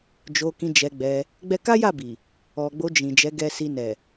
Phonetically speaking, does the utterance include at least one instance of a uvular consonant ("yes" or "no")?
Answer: no